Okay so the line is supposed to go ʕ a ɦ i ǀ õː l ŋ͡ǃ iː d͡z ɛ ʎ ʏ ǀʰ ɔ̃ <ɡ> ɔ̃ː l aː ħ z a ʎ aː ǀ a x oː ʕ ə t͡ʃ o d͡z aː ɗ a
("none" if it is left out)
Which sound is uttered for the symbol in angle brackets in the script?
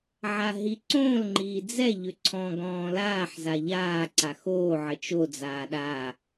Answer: ɡ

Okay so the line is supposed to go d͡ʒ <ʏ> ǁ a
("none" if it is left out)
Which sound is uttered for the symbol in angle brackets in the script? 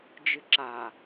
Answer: ɨ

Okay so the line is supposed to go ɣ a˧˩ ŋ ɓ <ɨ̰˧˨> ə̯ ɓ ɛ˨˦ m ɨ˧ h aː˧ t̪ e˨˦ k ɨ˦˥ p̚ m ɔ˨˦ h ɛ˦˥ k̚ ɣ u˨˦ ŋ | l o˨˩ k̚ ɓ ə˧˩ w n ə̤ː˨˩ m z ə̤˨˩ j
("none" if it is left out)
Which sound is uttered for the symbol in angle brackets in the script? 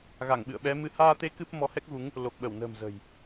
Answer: ɨ̰˧˨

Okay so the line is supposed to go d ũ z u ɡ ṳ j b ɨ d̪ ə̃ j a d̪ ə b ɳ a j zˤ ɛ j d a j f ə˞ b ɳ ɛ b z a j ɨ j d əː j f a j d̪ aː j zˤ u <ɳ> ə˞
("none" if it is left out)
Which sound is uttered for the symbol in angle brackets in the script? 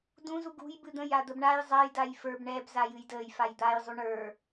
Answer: ɳ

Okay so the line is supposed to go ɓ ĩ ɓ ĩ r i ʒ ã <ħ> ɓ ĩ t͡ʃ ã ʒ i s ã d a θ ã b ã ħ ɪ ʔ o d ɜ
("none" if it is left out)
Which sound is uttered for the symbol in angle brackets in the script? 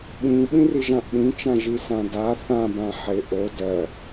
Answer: ʔ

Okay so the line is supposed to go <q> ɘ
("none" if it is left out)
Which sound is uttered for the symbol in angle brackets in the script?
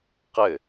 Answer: q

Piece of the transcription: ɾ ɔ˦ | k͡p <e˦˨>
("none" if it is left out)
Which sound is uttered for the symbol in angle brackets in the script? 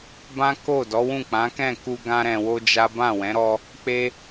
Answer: e˦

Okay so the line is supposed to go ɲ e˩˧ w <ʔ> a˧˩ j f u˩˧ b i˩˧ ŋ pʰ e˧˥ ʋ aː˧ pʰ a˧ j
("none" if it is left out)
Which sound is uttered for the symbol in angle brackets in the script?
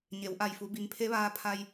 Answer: ʔ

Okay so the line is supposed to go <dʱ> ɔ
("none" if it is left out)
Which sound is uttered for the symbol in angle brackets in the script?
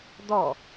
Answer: d̪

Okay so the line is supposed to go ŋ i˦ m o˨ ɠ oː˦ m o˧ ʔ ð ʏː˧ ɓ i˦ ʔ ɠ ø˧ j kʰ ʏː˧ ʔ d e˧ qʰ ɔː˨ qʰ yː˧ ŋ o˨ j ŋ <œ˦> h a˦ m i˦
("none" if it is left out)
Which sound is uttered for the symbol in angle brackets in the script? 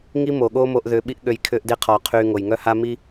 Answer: œ˦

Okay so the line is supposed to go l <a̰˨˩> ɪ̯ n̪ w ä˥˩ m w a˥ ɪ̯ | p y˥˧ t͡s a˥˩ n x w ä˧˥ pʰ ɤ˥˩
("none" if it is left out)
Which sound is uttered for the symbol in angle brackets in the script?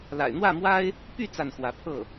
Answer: a̰˨˩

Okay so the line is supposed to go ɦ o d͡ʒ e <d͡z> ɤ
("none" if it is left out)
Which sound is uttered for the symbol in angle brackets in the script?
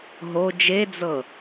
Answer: d͡z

